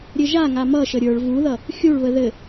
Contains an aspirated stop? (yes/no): no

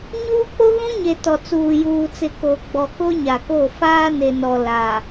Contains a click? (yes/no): no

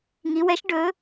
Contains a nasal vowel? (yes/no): no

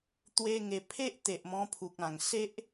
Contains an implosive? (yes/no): no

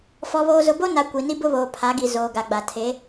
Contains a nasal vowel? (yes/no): no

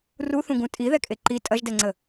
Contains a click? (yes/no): yes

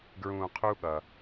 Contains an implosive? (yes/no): yes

